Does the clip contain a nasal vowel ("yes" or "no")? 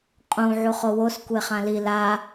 yes